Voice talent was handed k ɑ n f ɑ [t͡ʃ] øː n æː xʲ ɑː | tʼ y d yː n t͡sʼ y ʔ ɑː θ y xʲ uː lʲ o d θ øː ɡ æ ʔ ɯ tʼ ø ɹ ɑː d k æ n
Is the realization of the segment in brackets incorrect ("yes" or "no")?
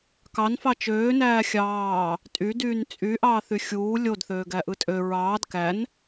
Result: no